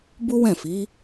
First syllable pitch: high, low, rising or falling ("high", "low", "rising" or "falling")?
high